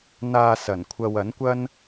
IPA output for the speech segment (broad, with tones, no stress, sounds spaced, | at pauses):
n̪ aː˧ s ɐ˨˩ n kʷʰ ɐ˧ w ɐ˨˥ n kʷ ɐ˥ n